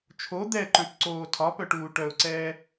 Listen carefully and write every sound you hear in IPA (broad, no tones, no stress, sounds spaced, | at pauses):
t͡ʃʰ o d̪ ɛ ǃ œ̃ p ǀ oː tʰ ɒ p œ ʈ uː ʈ œ ʊ̯ ǀ ɛː